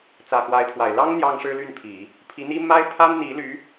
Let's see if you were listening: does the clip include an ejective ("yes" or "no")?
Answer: no